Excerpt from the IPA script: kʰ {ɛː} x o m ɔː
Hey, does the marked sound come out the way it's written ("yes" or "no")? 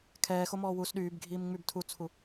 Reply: yes